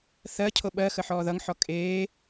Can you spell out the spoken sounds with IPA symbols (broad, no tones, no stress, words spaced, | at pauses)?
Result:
θɜcʰo ɓɜ xəħɔːðʌŋħɔ kʼeː